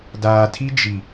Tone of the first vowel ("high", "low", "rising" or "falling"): low